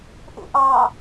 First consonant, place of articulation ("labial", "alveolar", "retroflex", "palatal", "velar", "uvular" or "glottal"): glottal